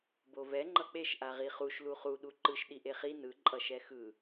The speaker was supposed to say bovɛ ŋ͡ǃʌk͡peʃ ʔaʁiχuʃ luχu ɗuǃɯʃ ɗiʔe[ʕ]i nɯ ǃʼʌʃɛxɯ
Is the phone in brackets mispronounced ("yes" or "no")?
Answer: yes